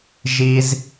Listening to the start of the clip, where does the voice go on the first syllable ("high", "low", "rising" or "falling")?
low